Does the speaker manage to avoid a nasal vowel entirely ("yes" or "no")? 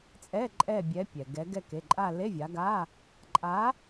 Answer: yes